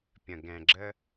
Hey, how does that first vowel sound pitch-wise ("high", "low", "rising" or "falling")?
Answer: low